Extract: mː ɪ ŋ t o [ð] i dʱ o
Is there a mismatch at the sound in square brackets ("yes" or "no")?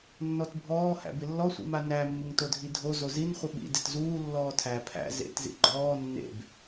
yes